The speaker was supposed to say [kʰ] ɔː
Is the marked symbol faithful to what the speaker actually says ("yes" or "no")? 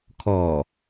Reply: yes